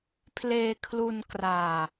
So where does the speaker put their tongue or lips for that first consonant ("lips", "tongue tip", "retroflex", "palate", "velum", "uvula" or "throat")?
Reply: lips